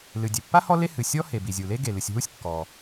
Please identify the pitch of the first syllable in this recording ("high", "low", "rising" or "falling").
low